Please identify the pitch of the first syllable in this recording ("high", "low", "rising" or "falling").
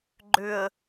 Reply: low